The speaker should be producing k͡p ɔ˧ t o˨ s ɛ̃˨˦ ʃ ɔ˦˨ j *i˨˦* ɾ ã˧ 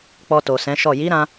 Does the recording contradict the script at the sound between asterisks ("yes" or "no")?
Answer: no